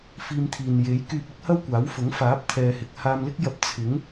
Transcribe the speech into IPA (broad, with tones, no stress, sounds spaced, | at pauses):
f iː˧ m t̪ʰ iː˨ n j e˨˥ j k yː˧ p̚ ɪ˥ k̚ h ɐ˥ w kʷ aː˨˥ w f ʊ˨˥ ŋ f aː˨˥ p̚ t̪ʰ ɛː˧ h ɪ˧ k̚ h aː˧ m l ɪ˥ k̚ j ɐ˧ p̚ t͡sʰ ɪ˨˥ ŋ